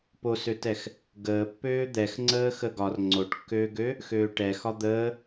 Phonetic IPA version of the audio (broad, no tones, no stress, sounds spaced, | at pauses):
p o s ø t ɛ x | ɡ əː pː øː d̪ ɛ x ŋ͡ǀ əː x ə ɡ ɒ r ŋ͡ǀ o ʈ kː øː ɡ ø | x øː ʈ ɛ x ɒ d̪ əː